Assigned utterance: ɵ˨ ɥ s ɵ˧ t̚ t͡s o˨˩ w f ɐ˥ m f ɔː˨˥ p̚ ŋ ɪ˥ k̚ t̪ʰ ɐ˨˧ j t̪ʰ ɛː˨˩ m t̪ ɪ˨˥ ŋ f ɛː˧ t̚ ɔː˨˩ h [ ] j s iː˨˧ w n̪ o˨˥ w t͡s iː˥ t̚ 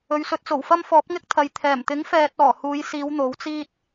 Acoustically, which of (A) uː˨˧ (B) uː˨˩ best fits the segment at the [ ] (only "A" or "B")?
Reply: A